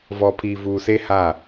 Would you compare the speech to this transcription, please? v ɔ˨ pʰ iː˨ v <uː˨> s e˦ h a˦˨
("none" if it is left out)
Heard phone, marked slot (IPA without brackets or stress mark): uː˨